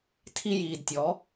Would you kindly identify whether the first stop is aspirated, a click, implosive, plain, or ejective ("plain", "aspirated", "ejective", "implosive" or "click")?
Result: aspirated